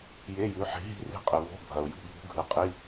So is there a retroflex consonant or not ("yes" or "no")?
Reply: no